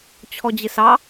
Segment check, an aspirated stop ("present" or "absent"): present